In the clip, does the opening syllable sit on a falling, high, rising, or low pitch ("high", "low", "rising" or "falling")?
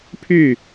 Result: falling